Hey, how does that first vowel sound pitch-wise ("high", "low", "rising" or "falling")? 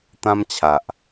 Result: high